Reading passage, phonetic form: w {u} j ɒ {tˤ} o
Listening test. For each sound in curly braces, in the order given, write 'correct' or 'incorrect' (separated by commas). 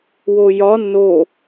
incorrect, incorrect